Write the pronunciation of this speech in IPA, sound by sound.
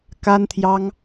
k a˥ n t̪ʰ j ɑ˥ ŋ

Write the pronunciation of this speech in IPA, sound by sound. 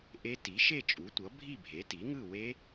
ʔ e˦˥ t i˩˥ ʃ e˥˨ t͡ʃʼ u˩˥ tʷ ʌ˩˥ bʱ i˥˨ bʱ e˩˥ t i˩˥ ŋ ɯ˥˨ w e˦˥

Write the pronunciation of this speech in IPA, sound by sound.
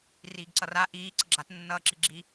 r iː ɡ ǀ ʌ r a ʔ iː ǀ ʌ ɡ͡ǁ a t nː ʌː ǁ i ɡ͡ǁ i

